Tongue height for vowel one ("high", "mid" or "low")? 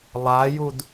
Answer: low